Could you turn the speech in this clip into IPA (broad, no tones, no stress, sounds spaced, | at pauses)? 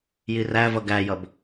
j i r æ v ʌ ɡ æ j ʌ b